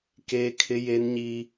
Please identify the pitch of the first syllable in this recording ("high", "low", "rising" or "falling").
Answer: high